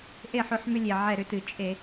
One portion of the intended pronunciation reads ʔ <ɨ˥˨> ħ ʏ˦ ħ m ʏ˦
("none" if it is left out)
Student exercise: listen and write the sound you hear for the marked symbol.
e˥˨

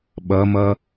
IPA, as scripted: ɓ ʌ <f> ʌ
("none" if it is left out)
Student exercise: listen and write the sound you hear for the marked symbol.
m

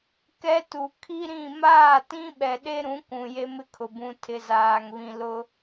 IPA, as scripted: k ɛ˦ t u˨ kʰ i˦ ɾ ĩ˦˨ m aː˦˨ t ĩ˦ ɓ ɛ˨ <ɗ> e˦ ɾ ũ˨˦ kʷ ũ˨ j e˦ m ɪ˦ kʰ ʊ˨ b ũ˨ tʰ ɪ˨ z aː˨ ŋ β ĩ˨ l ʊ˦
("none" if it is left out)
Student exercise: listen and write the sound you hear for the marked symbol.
ɗ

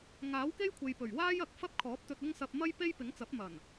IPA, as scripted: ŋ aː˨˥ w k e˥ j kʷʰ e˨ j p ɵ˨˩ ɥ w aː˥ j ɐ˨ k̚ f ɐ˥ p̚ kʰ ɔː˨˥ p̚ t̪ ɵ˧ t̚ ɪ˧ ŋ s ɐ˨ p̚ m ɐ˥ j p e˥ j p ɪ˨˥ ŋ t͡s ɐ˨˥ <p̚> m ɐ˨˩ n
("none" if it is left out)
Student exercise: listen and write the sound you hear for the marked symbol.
p̚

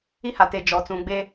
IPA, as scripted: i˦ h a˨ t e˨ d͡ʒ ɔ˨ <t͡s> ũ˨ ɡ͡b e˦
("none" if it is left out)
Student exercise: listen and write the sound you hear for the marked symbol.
t͡s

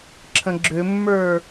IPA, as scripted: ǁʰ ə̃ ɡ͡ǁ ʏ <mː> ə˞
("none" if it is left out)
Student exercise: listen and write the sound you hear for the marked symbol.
mː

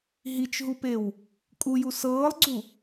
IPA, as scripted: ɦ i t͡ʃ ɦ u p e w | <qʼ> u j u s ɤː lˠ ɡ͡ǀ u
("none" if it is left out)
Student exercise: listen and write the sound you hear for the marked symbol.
kʼ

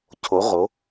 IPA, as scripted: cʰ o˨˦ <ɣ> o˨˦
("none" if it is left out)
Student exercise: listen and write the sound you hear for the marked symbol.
ʁ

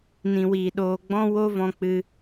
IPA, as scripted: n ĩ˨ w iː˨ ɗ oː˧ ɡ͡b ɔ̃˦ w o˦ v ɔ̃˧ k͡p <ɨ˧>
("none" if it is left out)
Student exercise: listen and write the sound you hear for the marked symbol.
ɨ˧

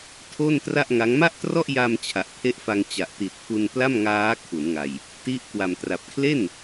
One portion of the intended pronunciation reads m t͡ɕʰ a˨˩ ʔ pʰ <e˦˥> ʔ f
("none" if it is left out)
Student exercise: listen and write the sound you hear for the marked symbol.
e˦˥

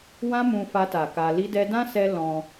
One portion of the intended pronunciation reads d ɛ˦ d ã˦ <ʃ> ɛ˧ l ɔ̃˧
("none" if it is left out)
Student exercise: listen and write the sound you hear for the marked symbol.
s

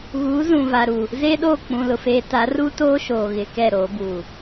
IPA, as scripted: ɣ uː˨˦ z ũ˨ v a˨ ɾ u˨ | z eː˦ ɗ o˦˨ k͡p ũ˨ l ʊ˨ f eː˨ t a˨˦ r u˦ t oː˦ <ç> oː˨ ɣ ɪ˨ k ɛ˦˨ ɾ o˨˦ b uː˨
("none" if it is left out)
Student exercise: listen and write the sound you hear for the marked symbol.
ʃ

